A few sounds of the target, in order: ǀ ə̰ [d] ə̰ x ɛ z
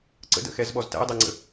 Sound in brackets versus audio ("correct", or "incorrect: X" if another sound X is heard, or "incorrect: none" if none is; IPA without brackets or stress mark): correct